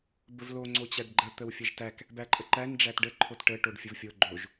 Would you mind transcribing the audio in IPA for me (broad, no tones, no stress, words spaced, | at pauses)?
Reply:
bəvlo ŋ͡ǀot͡ɕæɖɡ͡ǃə t̪əwfʲəʒtæk | bæǃʼəǃæn ɖ͡ʐætɖə ǃʰotʈə ʈoɖfʲəvfʲo ɡ͡ǃoʒ